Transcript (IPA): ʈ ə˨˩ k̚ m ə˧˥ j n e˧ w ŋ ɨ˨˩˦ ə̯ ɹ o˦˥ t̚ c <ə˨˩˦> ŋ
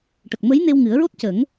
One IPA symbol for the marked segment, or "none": ə˨˩˦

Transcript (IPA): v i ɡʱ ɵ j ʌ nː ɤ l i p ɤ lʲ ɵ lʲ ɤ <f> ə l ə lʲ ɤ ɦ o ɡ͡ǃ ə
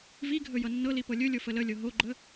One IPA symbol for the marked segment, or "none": f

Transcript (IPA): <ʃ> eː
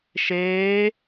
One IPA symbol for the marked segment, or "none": ʃ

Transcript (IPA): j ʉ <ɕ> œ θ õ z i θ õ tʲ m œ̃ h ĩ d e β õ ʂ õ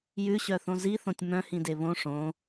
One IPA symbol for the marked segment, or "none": ɕ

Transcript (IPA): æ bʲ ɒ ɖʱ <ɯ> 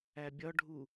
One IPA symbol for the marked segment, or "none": u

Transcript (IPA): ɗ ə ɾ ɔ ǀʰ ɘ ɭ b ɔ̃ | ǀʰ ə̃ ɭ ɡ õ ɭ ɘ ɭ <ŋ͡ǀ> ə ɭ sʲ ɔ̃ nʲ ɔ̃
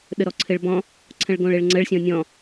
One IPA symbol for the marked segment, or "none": ŋ͡ǀ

